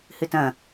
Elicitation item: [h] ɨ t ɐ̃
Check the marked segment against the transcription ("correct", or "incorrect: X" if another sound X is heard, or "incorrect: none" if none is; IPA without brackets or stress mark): correct